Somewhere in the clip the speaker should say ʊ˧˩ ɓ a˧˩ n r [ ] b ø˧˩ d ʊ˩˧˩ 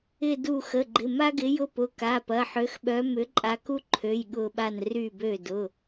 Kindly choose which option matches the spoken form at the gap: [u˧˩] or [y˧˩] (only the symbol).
y˧˩